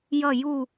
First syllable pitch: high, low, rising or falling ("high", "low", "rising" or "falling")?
falling